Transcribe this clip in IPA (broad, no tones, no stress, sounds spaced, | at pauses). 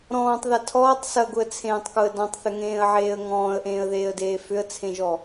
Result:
ɾ ɔ̃ː tˤ ð ɐ tʰ ɔː tˤ s ɐ ɡ ʊ ə̯ t͡sʰ ẽː tˤ k ʊ ə̯ d ɔ̃ tˤ θ ʏ ŋ ẽː ə̯ ʕ eː ə̯ ŋ ɔ̃ː ə̯ ʔ ẽː ə̯ ð eː ə̯ d eː f ʏ ə̯ t͡sʰ ẽ ʒ ɔ